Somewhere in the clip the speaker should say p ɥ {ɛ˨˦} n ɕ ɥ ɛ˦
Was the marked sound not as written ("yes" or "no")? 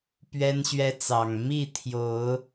yes